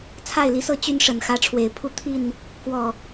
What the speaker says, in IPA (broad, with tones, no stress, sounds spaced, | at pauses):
t͡sʰ a˥˨ ɪ̯ l i˨˦ s ɤ˦ t͡ɕ y˦ n ʂ ə˨˩ n x ä˨˦ ʈ͡ʂʰ w e˨˩ ɪ̯ pʰ u˥˨ t̪ʰ i˥˨ n | k w ɔ˨˩